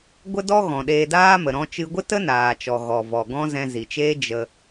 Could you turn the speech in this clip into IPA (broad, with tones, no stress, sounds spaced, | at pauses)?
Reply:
ɡʷ ə˦ d ɔ˦ ɣ ɔ̃˨ ɗ eː˧ d aː˦ m ə˨ ɾ ɔ̃˦ t͡ʃ ɨ˦ ɡʷ ə˦ t ə˦ n aː˨ t͡ʃ ɔ˨ ɣ ɔ˨ v ɔ˨ ɡ ɔ̃˦ z ɛ̃˧ z i˨ t͡ʃ eː˦ d͡ʒ ə˧